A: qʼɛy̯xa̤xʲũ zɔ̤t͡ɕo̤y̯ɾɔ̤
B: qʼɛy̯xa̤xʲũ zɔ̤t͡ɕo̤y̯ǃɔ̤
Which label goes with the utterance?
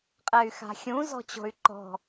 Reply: B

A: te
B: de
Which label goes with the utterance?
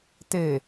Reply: A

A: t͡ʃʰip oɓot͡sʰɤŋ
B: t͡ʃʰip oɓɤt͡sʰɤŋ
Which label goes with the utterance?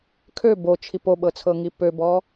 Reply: B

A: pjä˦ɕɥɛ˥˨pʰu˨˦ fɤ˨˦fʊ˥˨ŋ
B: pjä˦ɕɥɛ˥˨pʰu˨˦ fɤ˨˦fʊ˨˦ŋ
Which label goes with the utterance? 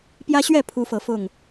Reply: A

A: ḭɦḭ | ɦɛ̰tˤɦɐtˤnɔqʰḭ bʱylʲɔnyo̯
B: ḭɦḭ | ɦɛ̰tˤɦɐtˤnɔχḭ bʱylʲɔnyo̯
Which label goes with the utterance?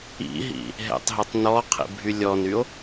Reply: A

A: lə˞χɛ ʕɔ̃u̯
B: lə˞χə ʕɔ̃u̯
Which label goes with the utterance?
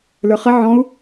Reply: B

